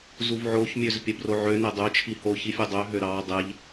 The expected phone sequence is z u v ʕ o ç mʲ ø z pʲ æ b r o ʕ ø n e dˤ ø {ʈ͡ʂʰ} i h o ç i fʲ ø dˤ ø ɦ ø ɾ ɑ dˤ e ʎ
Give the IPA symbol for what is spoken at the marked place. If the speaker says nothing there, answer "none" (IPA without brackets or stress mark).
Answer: t͡ʃʰ